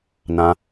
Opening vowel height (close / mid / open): open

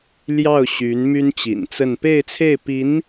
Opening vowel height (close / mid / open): open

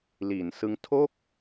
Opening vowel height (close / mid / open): close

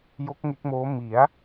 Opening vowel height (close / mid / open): mid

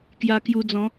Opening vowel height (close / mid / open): open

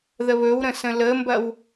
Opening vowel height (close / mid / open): mid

